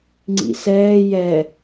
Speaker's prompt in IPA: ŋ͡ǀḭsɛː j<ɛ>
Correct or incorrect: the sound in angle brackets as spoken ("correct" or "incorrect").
correct